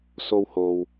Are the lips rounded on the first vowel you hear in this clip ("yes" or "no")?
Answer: yes